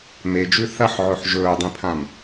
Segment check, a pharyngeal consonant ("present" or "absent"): present